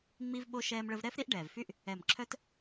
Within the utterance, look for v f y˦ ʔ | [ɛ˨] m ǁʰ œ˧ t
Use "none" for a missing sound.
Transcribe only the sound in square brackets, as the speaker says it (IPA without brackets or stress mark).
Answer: ɛ˨